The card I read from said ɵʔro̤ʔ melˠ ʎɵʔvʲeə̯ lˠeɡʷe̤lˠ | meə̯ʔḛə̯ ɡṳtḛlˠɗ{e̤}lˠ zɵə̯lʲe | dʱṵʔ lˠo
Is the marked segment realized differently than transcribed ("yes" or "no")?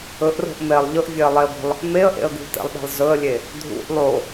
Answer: no